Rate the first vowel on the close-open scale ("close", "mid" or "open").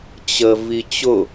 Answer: mid